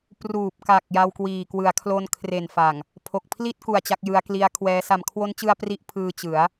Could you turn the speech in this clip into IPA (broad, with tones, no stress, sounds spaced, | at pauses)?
p r uː˨˩ p̚ k a˨˩ k̚ j a˧ w k w iː˨˩ k w ɯ˩˦ a̯ kʰ l o˧ n kʰ r e˨˩ n f a˨˩ ŋ | pʰ o˨˩ k̚ pʰ l i˥˩ t̚ k u˨˩ a̯ t͡ɕ a˦˥ k̚ j ɯ˦˥ a̯ k l i˦˥ a̯ kʰ w ɛː˦˥ s a˨˩ m kʰ w o˦˥ n t͡ɕ ɯ˧ a̯ p r i˦˥ ʔ pʰ ɯː˧ t͡ɕ ɯ˩˦ a̯